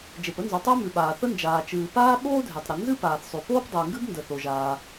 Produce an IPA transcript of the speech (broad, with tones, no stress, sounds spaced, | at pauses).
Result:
d͡ʒ e˩ p ə˥ n z o˩ tˤ əː˥ m ʉ˩ ɓ aː˩ θ ə˥ n d͡ʒ aː˩ t͡ʃ ɨː˩ p aː˥ ɓ oː˥ dʱ e˩ tˤ ɾ ə˩ n z ɨ˥ p aː˩ θ sˤ ʉ˩ p oː˥ p dˤ ɨː˩ ŋ ɡ ɨ˥ b n d ə˩ θ o˩ ʒ aː˩